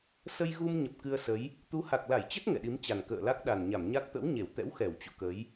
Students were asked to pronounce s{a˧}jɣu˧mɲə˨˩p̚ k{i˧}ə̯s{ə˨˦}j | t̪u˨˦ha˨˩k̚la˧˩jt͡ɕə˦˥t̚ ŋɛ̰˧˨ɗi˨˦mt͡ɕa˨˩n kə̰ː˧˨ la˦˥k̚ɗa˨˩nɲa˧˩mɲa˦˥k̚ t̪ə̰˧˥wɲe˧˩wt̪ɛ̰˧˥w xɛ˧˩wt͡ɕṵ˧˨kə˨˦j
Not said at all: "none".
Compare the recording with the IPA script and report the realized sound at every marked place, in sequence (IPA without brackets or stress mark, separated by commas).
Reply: ə˧, ɨ˧, ə˨˦